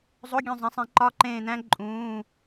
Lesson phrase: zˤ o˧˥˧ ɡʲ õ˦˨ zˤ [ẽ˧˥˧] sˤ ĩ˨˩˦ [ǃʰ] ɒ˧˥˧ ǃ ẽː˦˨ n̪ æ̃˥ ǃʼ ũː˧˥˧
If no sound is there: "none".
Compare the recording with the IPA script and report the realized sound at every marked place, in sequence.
ẽ˨˦, ǃ

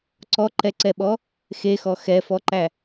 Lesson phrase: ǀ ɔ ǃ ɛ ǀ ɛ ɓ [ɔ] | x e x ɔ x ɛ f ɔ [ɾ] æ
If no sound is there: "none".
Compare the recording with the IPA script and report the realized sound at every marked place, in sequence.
ɔ, ǃ

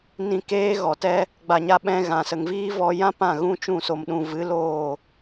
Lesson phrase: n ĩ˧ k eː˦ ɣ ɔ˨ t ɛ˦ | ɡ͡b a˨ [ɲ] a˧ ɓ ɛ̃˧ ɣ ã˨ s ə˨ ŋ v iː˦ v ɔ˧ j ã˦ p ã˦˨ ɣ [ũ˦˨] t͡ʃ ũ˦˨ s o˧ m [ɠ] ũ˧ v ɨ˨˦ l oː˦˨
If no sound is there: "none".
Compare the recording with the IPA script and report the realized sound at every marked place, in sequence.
ɲ, ũ˦, ɗ

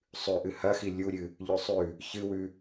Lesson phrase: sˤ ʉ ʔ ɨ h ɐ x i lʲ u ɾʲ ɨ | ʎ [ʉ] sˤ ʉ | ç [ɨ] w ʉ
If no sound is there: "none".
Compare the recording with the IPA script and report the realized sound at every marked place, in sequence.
ʉ, ɨ

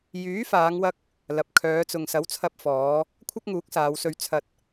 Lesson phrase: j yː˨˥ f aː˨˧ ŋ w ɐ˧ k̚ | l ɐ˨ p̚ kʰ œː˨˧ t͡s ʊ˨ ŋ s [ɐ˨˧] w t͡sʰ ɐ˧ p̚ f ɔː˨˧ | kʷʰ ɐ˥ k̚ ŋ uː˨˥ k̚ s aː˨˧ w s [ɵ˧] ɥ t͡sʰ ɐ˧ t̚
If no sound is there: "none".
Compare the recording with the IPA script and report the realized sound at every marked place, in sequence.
ɐ˨˥, ɵ˧

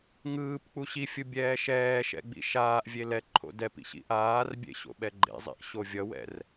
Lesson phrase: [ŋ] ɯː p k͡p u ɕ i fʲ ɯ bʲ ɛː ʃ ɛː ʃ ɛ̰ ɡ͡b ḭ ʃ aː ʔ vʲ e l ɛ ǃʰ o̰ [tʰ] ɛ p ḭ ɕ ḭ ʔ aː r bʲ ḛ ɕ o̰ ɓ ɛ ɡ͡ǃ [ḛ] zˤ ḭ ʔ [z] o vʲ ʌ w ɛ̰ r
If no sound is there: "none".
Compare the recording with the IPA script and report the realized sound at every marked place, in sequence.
ŋ, d, ḛ, ɕ

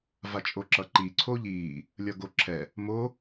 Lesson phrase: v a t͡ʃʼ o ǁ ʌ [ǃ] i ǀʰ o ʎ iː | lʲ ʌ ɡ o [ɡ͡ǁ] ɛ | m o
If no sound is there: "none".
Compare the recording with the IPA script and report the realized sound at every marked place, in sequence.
ǃ, ǁʰ

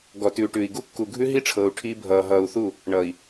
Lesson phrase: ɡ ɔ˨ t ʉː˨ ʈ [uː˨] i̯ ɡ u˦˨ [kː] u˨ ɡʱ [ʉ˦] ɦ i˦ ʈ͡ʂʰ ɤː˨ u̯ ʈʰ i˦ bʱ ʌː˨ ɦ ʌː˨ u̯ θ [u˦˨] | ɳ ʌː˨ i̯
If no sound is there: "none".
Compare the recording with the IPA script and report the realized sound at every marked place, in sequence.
ʉː˨, kː, ʉ˦, u˦˨

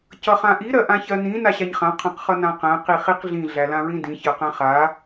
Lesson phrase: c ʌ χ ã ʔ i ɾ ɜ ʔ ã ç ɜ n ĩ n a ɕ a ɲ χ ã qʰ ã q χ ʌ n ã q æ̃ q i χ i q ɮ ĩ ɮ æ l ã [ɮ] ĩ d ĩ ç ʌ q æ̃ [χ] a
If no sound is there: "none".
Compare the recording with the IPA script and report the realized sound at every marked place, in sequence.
ɹ, χ

